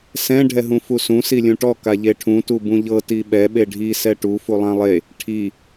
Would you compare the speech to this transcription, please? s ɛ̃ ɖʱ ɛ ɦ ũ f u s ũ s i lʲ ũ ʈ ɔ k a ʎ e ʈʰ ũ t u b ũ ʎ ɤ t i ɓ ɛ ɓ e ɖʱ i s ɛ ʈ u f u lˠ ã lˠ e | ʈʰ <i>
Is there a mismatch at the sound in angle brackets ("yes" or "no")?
no